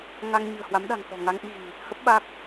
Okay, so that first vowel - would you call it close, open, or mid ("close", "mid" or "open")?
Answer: open